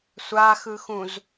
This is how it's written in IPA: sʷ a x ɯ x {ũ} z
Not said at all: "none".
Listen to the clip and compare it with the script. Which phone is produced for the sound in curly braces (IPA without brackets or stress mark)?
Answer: ũ